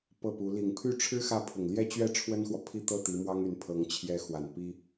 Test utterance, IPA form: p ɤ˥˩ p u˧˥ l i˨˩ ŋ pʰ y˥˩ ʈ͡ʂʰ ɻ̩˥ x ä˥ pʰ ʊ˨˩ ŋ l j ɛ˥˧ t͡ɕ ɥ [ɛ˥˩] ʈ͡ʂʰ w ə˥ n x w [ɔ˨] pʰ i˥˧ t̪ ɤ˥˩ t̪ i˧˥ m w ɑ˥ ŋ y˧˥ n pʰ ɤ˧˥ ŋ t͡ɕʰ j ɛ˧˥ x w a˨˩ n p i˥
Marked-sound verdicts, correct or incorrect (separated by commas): correct, correct